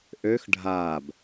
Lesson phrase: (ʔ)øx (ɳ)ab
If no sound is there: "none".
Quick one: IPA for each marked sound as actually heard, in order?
ʔ, ɖʱ

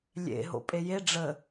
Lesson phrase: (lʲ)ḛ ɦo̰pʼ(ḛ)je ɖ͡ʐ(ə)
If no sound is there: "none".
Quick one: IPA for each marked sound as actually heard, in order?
lʲ, e, ə

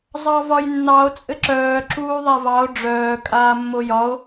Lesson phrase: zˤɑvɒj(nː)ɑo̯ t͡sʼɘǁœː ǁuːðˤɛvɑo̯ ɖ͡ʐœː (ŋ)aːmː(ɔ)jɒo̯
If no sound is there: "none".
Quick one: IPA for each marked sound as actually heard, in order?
nː, kʼ, o

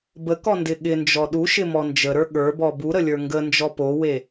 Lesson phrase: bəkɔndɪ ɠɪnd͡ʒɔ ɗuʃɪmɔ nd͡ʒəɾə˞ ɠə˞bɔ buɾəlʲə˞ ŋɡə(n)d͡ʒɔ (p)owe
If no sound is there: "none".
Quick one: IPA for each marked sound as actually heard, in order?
n, p

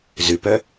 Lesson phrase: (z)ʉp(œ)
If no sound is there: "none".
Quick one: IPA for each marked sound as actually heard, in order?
z, œ

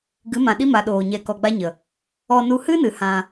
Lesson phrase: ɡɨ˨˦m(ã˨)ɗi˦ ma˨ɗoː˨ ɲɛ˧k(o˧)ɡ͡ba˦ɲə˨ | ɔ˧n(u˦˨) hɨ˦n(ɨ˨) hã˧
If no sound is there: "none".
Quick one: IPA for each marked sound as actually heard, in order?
ã˨, ɔ˧, u˧, ɨ˨

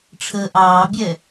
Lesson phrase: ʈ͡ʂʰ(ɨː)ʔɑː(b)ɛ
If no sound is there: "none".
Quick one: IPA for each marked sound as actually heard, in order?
əː, bʲ

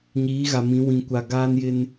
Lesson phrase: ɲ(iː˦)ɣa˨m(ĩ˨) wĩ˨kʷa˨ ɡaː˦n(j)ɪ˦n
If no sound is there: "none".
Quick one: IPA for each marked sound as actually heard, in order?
iː˨˦, ĩ˨˦, j

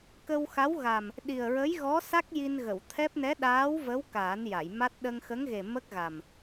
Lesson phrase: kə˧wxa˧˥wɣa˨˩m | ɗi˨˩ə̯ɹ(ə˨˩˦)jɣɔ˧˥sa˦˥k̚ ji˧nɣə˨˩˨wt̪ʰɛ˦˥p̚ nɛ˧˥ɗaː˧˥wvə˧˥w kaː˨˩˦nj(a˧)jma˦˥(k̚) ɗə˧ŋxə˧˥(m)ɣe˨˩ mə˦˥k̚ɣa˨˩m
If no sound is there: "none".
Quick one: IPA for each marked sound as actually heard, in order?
ə˧˥, a˨˩˨, t̚, ŋ

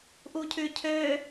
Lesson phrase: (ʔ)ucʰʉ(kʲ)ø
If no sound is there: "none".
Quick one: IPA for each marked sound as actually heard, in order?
ʔ, cʰ

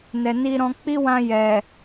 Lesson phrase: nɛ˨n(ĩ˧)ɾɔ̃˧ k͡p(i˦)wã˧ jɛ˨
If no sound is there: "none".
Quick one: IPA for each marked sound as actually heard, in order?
i˧, i˦

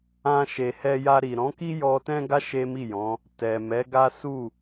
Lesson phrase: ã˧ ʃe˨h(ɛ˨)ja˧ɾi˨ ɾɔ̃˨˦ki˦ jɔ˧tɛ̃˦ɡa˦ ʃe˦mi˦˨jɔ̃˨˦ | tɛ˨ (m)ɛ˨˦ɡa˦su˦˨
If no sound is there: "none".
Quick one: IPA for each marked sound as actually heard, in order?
ɛ˧, m

